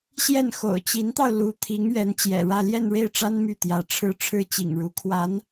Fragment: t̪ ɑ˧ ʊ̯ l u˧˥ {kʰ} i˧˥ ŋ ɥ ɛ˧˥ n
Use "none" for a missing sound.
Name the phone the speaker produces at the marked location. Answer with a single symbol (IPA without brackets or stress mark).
t̪ʰ